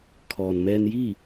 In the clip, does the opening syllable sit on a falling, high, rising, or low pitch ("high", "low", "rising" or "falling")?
low